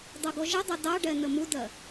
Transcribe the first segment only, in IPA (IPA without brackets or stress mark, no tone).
dˤ